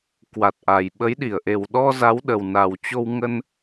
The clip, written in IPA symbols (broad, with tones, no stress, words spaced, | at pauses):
kwa˨˩t̚ʔa˨˩jɓə˨˦j ɗi˧˩ə̯ʔe˨˩w ɗɔ˧za˨˦w ɗə˨˩wna˨˩wt͡ɕo˧wŋə˧n